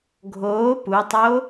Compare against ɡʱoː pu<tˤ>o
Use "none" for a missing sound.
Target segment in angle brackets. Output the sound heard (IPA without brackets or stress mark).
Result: tˤ